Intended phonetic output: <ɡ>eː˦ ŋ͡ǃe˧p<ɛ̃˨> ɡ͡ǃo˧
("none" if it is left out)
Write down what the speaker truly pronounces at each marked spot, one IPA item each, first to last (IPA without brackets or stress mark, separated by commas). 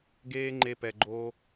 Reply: ɡ, ɛ˨